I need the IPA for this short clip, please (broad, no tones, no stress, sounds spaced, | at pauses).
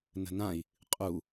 n ə̤ n ã i̯ | qʼ u